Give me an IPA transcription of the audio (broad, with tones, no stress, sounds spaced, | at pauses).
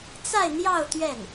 t͡s a˥˧ ɪ̯ n̪ j ɑ˥˧ ʊ̯ t̪ ɥ ɛ˥˩ n